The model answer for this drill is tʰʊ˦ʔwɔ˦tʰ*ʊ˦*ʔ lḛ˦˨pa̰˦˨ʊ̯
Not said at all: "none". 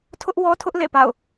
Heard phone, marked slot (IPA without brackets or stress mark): ʊ˦